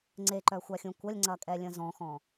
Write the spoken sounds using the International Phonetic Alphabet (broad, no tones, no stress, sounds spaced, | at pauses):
ŋ͡ǀ e ǃ œ xʷ a xʲ ũ kʷ ɐ lʲ ŋ͡ǀ ɐ kʼ ɛ lʲ ə̃ z ɔ̃ x ɔ̃